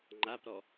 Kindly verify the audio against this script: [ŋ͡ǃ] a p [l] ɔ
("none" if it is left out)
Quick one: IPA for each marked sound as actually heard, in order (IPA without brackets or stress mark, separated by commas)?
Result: ŋ͡ǃ, ɾ